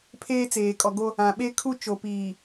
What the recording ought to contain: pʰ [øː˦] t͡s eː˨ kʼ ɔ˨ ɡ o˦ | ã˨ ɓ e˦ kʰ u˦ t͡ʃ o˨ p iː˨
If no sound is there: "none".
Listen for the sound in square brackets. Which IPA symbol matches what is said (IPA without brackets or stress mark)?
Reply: eː˦